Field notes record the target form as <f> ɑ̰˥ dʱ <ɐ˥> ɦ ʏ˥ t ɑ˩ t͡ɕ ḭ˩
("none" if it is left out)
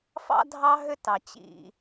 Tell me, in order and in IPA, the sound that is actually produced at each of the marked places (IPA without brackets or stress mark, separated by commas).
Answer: f, ɑ˥